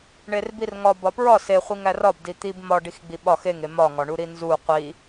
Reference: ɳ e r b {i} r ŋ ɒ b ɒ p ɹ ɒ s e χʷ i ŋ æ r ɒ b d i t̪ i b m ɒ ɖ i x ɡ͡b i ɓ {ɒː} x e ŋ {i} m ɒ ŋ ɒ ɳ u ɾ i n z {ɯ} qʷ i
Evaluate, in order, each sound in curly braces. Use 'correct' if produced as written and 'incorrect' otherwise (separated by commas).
correct, incorrect, incorrect, incorrect